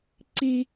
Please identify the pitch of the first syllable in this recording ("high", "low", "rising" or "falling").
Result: high